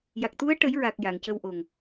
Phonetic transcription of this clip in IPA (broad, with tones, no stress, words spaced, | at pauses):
ja˨˩k̚t̪u˧˥ə̯ ʈə˨˩˦jɹa˨˩k̚ ja˨˩˨ŋcə˧wʔo˨˩ŋ